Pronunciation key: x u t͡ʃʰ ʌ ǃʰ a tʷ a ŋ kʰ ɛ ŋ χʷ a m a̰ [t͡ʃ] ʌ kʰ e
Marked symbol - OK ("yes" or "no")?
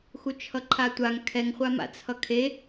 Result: no